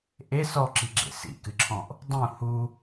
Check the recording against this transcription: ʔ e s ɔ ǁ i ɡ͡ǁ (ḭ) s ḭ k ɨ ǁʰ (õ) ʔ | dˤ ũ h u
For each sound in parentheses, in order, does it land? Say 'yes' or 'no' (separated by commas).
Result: no, no